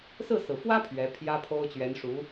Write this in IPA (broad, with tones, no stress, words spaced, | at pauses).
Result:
sɹ̩˥˩sɹ̩˩fwä˥ pʰɥɛ˧˥pʰjä˥pʰo˥ʊ̯ t͡ɕɥɛ˧˥nʂu˧˥